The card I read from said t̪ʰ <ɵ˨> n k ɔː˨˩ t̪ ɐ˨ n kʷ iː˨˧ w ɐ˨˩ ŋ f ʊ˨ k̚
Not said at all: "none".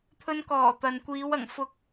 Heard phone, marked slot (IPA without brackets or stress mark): ɵ˧